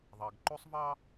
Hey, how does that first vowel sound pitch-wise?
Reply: low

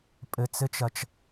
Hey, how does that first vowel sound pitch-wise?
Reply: low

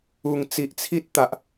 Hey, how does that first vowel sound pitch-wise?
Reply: low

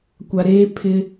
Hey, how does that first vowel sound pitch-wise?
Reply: low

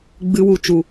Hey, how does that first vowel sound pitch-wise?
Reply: low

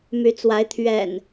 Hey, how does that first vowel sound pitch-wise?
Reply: rising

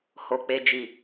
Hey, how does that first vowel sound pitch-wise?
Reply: low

